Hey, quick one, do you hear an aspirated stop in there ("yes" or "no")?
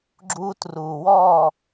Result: no